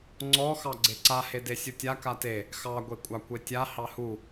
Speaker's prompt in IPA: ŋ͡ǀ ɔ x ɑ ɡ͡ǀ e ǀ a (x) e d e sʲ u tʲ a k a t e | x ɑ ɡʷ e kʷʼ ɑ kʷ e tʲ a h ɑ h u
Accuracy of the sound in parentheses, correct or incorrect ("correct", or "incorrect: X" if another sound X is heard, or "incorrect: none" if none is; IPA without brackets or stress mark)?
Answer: incorrect: h